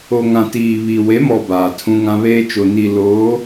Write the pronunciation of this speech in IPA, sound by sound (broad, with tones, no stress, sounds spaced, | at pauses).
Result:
o˨ ŋ ã˨ t iː˨ β i˨ w e˨˦ m ɔ˨ b aː˨ tʰ ũ˦ ŋ ã˦ β eː˦ t͡ʃ o˨ n i˨ l oː˨˦